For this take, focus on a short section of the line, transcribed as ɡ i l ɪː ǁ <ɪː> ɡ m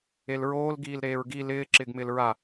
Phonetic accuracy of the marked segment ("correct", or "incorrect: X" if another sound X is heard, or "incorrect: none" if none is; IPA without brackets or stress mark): correct